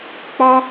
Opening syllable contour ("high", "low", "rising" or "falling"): high